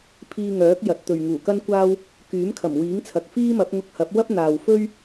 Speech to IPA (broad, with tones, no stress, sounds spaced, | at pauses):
pʰ iː˧ ŋ œː˨˥ k̚ j ɐ˨˥ t̚ t̪ ɵ˨ ɥ ŋ uː˨˩ k ɐ˥ n kʷ aː˥ w | k yː˨˥ m kʰ ɐ˨˩ m w iː˨˥ ŋ t͡sʰ ɐ˨ k̚ f iː˥ m ɐ˨˥ p̚ ŋ ʊ˧ k̚ h ɐ˨˥ p̚ w ɐ˥ p̚ n̪ aː˨ w f ɵ˥ ɥ